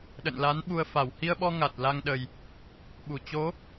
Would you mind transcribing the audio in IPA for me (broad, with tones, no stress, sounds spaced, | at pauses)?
ɗ ə̰˧˨ n l a˨˦ n ɓ u˧ ə̯ f a˧˩ w h i˧ ə̯ ɓ ɔ˧ ŋ a˨˩ t̚ l a˧ ŋ ɗ ə˨˩ j | ɓ u˧˩ t͡ɕ o˨˦